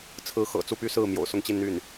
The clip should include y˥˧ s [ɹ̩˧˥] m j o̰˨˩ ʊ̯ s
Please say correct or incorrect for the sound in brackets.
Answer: incorrect